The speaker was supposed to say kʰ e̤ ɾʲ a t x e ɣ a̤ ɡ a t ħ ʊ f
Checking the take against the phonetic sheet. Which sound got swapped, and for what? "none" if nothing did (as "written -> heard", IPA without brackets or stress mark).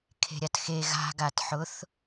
f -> θ